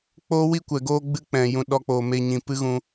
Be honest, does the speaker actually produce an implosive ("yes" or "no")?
yes